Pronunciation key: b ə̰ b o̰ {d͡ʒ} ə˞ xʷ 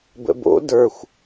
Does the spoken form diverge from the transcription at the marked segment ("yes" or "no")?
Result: yes